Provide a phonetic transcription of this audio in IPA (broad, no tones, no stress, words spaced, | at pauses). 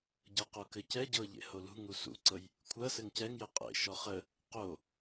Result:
ɟɤqokɘcɛ ɟɤ ʎḛholṳ ŋusṵǀɤj | kʷʰɐ sɘŋcɛŋjɘ qʼḛ ʃɔχə | qo